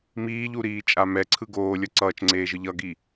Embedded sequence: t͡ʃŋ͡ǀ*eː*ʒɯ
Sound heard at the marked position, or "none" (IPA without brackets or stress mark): eː